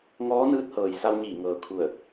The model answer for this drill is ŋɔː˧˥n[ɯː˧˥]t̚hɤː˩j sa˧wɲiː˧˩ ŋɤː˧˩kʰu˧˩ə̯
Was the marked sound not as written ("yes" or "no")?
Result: no